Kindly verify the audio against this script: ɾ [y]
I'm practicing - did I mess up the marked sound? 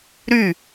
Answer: no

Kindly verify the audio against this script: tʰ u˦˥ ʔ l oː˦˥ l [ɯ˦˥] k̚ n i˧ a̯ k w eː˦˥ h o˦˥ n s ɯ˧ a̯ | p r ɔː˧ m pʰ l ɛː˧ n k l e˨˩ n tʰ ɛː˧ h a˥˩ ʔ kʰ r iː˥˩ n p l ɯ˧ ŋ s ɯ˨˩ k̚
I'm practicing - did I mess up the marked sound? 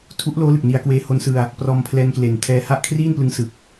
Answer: yes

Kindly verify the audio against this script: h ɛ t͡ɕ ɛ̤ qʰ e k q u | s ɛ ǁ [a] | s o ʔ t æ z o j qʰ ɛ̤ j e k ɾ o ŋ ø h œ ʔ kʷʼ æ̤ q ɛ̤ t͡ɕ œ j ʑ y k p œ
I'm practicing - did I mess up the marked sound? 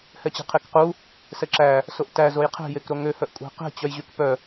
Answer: yes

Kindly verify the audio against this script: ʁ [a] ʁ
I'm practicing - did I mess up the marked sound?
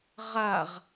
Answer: no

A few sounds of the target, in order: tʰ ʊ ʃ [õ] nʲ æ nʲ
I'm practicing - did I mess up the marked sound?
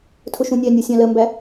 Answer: yes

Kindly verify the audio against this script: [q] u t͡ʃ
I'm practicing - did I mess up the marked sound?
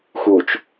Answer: yes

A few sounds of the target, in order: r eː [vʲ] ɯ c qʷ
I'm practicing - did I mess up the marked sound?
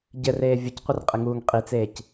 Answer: no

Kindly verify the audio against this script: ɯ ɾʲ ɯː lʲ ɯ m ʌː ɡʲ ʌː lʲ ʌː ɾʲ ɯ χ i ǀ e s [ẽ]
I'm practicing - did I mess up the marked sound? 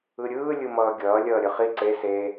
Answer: yes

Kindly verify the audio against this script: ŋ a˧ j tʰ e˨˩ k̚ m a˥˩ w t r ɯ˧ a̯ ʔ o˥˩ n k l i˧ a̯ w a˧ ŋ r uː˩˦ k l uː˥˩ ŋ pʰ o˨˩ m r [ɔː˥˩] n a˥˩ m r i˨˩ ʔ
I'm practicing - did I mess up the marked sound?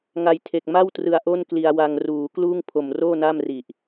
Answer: yes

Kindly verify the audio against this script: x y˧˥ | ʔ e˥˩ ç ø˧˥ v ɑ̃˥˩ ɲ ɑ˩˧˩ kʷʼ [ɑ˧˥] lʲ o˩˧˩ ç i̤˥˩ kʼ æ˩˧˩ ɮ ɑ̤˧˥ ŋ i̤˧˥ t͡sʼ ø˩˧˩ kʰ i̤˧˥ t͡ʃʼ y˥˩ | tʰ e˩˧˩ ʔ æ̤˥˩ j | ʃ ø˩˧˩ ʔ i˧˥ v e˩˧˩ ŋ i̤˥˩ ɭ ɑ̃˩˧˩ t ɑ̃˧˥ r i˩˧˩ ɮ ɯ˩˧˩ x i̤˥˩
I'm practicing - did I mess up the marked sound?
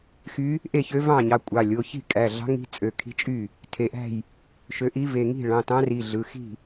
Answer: yes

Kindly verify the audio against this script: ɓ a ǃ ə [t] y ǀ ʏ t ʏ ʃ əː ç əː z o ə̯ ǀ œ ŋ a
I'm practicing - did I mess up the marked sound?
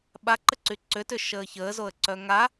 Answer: yes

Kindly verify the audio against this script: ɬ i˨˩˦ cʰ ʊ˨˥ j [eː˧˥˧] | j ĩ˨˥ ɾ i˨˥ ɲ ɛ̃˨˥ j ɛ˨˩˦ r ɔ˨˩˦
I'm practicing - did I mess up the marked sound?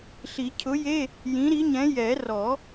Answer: yes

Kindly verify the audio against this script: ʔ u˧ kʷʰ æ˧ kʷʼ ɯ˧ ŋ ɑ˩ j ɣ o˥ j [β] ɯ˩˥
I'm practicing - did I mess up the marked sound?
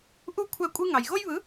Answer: no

